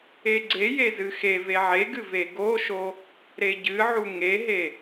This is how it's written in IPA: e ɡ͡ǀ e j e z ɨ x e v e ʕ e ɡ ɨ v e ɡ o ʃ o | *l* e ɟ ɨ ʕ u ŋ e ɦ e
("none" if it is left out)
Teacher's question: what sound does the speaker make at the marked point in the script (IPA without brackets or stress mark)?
ɾ